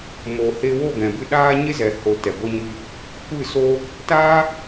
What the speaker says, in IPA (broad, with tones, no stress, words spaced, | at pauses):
mo˨he˧wo˦˨ ɡɛ̃˨bɨ˦˨ ɗaː˦ ɲe˦zɛ˨ho˨ tɛ˨ ɡʷɛ˦ɲɨ˦ | kʷɨ˦˨soː˦ | taː˦